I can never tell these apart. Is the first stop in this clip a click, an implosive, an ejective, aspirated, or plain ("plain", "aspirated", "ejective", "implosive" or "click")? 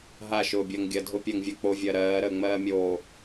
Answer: plain